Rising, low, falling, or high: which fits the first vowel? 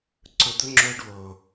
low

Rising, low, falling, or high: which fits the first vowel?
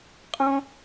high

